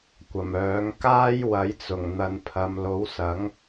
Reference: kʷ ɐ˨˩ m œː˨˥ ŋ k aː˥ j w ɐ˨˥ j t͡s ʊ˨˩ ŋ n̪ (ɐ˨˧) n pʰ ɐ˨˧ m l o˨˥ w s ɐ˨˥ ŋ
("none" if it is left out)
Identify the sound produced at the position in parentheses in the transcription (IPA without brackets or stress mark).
ɐ˨˧